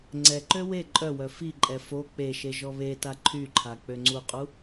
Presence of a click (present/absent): present